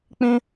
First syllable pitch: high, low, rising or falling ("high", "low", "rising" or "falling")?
high